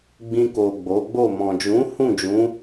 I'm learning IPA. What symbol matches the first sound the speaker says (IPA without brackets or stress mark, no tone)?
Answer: ɡ͡b